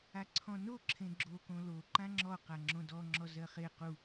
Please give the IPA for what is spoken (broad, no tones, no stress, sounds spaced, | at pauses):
a ǀʰ ɔ̃ n o ǁʰ ẽ ɡ͡ǁ o k õ l o ǃ ã ŋ͡ǁ ɔ q a ŋ͡ǁ õ d ɔ ŋ͡ǁ ɔ z ɜ χ e q u